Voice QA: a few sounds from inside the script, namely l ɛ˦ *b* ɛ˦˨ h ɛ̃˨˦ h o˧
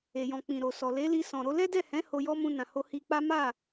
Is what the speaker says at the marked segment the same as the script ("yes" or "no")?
no